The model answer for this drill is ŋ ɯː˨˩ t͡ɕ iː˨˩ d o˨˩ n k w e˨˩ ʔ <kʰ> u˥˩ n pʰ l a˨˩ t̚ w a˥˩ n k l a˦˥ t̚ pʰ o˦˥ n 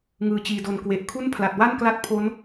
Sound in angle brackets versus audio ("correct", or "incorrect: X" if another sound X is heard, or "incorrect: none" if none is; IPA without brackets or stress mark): correct